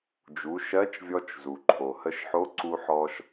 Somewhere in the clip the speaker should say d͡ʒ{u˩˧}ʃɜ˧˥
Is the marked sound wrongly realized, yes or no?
no